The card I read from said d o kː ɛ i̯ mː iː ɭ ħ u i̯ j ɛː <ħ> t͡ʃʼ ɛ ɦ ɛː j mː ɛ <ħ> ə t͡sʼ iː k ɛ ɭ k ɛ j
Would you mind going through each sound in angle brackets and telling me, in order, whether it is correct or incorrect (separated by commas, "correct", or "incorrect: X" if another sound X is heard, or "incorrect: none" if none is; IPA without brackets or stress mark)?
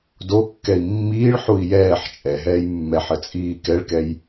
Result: correct, correct